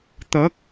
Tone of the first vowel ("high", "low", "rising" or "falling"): rising